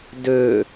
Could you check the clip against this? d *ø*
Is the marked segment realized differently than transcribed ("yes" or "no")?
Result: no